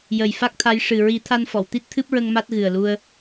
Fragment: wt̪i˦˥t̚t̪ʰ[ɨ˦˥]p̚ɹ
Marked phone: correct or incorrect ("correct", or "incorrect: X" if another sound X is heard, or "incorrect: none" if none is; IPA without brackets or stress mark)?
correct